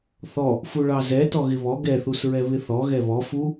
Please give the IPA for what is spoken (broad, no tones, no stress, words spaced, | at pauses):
θɔ | fuɭɑzɛ tɔɣɪβɔ ɡɛθusɹɛ βɪθɔ ɣɛβɔ fu